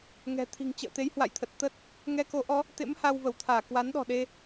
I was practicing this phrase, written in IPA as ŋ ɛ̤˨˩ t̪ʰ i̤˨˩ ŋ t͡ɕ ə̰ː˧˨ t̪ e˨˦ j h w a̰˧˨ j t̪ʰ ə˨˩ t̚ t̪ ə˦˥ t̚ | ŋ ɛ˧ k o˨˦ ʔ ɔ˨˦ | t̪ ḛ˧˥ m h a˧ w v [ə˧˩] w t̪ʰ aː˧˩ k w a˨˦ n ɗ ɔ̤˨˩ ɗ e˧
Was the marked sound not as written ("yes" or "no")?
no